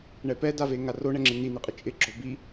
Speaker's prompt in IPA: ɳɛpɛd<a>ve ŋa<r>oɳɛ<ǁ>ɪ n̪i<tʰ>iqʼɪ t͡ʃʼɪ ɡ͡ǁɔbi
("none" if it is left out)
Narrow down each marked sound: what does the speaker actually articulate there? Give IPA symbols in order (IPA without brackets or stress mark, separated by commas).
a, r, ŋ͡ǁ, n̪